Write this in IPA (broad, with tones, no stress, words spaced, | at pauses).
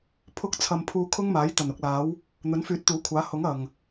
pʰʊ˧k̚t͡sʰɐ˨m pʰuː˧ kʰʊ˥ŋmaː˨˥j t̪ɐ˨˩nʊ˧k̚laː˨˥w | n̪ɵ˨˥nfyː˨˥t̚t̪uː˨˥kʷʰaː˨˥ hʊ˨˥ŋɐ˨˩ŋ